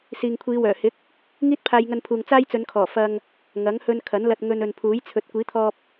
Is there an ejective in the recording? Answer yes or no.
no